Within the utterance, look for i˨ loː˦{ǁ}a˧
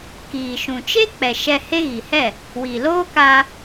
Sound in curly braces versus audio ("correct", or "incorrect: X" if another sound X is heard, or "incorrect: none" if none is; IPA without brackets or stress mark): incorrect: k